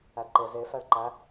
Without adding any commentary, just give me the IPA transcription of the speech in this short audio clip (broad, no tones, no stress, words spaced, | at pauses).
ædǃe ze fæɭǃæ